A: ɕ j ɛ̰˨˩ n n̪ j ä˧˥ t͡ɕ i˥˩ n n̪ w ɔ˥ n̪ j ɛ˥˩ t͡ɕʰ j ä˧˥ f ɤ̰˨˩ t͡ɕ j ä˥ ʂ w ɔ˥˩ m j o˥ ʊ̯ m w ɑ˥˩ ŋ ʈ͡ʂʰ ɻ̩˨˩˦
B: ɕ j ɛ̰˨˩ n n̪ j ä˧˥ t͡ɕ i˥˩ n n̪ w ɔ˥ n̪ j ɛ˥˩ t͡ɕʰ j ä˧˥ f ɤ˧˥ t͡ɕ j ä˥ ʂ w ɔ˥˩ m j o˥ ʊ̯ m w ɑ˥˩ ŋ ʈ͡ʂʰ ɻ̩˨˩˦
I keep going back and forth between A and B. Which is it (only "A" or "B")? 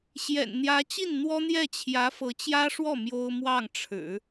B